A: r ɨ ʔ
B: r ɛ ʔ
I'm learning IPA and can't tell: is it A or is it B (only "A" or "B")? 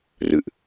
A